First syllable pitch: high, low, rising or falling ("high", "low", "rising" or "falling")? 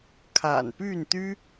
low